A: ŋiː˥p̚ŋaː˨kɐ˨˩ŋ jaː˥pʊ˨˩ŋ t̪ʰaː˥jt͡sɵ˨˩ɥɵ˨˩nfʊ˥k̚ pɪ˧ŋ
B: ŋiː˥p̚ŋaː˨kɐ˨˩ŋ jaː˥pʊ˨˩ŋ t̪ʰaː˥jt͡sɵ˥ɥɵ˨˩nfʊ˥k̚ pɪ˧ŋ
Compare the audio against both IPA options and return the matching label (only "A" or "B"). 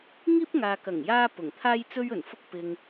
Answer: B